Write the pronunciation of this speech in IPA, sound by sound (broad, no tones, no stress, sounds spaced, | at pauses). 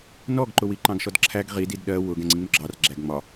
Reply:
n ɔ ɡ ǃ ʊ w i ǃ ɑ̃ ɡ ʃ ɔ d ǁʰ æ ɡ ʁ i d i d ɗ ɜ w ʊ ɡ ɛ̃ ŋ͡ǀ ĩ ŋ͡m ʊ ɡ͡ǁ ɑ r ɡ͡ǁ æ ɡ ŋ͡m ɒ